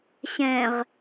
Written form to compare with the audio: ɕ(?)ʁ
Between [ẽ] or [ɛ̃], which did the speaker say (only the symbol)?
ɛ̃